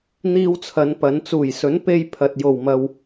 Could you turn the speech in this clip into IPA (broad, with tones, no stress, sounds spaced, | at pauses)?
n̪ iː˧ w t͡sʰ ɐ˨˧ n p ɐ˨˧ n t͡s uː˨˩ j s ɵ˨˥ n p e˧ j pʰ ɐ˨ t̚ j o˨˩ w m ɐ˨ w